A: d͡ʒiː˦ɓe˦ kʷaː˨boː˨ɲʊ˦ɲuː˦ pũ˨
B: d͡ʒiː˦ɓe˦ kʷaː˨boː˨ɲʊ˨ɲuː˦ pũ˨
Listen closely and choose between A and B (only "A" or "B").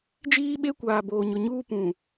B